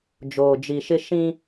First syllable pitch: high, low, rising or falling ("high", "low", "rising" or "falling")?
low